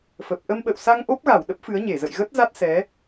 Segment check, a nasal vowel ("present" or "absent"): absent